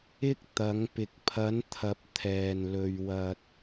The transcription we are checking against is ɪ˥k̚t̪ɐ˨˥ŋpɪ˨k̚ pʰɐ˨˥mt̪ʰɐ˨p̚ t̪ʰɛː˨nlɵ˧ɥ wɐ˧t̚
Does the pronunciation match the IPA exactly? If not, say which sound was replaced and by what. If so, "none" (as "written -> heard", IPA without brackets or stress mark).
m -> n